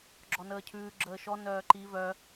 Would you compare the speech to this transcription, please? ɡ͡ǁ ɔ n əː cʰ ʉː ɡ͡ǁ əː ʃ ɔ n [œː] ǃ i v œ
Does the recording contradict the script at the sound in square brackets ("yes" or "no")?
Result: no